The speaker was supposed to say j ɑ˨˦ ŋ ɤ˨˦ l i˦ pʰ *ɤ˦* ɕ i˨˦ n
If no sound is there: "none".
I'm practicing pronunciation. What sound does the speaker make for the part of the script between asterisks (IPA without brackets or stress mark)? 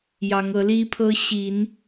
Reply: ɤ˦